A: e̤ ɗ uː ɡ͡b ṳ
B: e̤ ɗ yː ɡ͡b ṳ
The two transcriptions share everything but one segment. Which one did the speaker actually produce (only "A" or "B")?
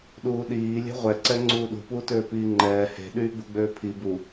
B